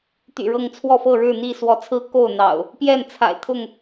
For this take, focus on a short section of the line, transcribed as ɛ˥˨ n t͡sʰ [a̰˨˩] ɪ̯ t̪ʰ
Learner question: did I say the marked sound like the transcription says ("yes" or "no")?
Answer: yes